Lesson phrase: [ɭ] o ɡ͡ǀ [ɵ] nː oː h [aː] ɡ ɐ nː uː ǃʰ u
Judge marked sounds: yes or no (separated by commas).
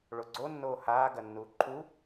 yes, no, yes